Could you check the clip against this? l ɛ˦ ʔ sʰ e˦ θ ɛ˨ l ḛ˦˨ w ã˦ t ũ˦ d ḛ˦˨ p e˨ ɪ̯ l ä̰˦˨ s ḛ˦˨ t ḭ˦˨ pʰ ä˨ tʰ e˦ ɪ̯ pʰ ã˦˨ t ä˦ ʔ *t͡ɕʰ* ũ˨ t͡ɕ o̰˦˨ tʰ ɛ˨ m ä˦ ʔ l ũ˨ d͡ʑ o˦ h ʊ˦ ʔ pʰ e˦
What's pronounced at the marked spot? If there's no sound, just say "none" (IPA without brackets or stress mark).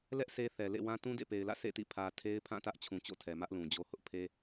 t͡ɕʰ